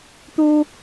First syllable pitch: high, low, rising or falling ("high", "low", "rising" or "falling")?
high